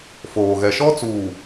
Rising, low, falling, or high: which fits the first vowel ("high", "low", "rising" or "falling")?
low